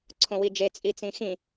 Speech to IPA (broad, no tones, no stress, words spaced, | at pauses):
ǀʰõwid͡ʒe t͡sʼit͡sĩxĩ